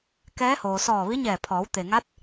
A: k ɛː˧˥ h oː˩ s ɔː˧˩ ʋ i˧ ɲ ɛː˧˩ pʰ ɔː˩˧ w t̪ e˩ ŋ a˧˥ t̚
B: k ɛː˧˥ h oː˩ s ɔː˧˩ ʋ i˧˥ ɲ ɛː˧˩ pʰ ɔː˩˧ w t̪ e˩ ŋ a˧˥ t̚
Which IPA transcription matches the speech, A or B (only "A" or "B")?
B